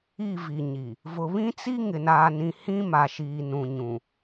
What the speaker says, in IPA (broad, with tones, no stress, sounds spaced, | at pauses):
i˦˨ v i˨ ɲ i˨ | v ʊ˨ β ĩ˦ t͡s i˦ ŋ ɪ˨ n aː˨ n ĩ˨ h ĩ˦ m a˨ ʃ iː˨ n ũ˨ ɲ ũ˨